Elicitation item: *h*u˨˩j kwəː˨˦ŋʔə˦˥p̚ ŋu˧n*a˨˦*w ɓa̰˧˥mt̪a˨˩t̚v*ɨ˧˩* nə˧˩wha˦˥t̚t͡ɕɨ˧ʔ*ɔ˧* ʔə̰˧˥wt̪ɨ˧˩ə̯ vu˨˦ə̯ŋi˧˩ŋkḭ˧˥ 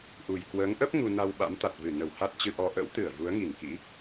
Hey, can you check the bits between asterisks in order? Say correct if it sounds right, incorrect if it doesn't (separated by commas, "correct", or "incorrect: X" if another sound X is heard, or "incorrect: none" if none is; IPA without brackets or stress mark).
incorrect: ʔ, incorrect: a˧, correct, correct